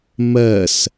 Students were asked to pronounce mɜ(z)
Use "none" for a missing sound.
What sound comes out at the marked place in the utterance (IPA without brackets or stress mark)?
s